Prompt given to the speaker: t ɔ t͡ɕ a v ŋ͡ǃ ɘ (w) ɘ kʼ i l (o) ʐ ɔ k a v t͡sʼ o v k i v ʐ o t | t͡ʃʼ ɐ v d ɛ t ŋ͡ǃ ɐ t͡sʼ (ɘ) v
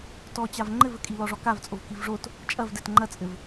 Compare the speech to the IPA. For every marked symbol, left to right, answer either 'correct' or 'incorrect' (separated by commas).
incorrect, incorrect, correct